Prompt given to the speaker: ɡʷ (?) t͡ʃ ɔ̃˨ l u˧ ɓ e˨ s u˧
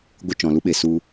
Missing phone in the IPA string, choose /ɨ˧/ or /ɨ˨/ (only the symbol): ɨ˧